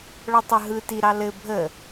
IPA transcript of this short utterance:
ɭ ɔ tˤ ə ɦ ɯ t i ɾ ɑ l ɘ bʱ ə

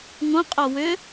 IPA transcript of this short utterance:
ŋ õ qʼ o w ʏ

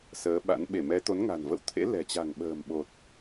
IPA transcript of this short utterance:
s əː˨˦ ɓ a̰˧˥ n ɓ e˧˩ m ɛ˨˦ t̪ o˨˦ n ŋ a̤˨˩ n v ə̰˧˨ w t̪ʰ ḛ˧˥ l ɛ̤˨˩ t͡ɕ a̤˨˩ ŋ ɓ ə̤ː˨˩ m ɓ o˨˩ t̚

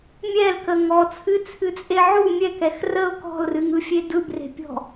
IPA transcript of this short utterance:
mʲ ɛ l k ə ŋ ɔ t͡sʰ ɨ t͡sʰ ɨ t͡sʼ e ʕ u mʲ ɛ k ɛ x r ə ʊ̯ k ɔ̤ l r ɨ ŋ ɯ fʲ e d ɯ b r e̤ pʲ ɔ̤

